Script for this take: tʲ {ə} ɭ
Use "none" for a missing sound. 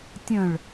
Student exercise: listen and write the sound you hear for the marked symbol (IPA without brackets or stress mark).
ə̃